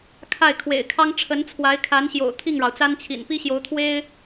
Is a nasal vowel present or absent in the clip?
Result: absent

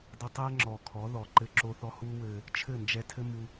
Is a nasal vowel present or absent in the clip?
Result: absent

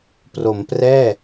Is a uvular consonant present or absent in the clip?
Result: absent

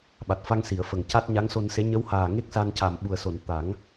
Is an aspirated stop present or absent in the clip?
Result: absent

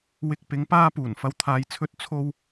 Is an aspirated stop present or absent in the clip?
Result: present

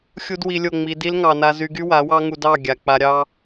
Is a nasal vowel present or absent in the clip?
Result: absent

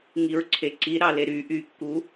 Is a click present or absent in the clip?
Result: present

